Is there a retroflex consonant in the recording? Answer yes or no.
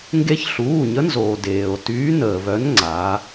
no